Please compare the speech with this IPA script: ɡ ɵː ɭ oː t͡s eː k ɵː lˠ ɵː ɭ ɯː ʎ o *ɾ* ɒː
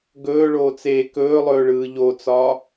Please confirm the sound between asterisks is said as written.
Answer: no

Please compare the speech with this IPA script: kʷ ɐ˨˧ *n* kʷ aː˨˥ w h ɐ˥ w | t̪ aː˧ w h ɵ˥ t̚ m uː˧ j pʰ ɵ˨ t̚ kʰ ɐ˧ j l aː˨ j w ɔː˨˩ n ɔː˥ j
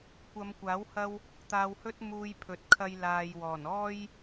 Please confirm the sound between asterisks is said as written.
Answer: no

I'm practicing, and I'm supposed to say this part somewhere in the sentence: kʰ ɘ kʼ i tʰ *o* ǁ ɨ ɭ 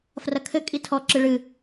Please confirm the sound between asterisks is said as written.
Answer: no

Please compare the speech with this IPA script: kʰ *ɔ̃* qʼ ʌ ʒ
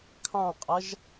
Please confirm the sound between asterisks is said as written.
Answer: no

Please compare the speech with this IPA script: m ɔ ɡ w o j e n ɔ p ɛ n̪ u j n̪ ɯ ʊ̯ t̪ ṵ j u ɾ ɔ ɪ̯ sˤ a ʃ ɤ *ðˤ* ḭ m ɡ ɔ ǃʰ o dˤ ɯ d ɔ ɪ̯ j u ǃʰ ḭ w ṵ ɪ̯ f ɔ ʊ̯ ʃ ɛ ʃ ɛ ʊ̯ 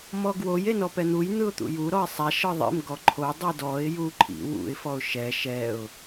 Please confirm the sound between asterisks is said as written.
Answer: yes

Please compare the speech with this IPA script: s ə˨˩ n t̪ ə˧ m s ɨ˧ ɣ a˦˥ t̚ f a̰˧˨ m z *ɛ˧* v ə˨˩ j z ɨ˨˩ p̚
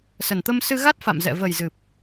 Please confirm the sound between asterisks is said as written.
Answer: no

